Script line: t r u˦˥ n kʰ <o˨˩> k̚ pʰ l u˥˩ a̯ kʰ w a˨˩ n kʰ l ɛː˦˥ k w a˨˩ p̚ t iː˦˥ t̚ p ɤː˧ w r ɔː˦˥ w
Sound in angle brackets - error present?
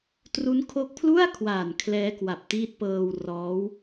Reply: yes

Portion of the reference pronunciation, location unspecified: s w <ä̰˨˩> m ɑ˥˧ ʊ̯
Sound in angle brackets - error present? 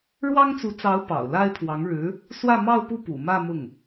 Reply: yes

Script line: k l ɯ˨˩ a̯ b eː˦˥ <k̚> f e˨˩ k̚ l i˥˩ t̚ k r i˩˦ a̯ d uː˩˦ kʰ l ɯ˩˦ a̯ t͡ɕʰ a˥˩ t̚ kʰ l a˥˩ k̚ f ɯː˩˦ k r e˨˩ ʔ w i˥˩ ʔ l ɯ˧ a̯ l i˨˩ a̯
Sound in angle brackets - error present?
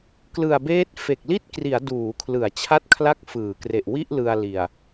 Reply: yes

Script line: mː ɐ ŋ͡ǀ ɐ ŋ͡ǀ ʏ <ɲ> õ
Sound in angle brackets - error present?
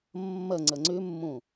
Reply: yes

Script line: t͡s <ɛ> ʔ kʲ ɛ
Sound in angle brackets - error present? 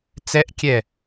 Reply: no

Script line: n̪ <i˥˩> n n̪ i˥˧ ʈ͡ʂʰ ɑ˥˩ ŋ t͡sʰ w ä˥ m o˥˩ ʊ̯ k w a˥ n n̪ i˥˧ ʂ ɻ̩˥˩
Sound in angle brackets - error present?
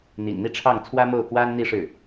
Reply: yes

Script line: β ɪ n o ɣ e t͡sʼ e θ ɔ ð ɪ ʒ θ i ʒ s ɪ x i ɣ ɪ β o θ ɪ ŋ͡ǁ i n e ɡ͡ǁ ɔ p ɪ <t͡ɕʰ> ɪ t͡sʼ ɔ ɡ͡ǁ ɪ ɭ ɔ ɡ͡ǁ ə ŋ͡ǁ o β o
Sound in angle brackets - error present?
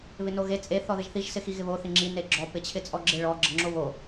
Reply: no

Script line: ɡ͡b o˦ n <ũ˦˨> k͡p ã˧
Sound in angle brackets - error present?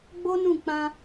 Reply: no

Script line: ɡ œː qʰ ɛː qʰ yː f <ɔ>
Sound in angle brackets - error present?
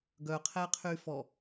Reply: no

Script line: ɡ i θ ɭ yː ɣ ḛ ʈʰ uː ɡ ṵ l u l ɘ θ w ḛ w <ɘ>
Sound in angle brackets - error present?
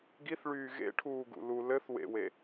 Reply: yes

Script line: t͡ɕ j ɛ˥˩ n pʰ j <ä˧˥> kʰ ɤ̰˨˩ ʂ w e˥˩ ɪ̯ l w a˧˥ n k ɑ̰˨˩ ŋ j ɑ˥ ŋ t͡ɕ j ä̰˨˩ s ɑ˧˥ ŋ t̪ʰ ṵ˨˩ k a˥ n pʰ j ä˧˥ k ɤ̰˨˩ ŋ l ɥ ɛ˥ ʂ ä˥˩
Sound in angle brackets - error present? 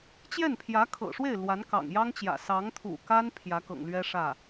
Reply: no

